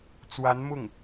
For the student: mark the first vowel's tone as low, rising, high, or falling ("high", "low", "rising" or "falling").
rising